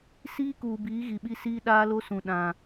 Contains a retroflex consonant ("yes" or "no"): no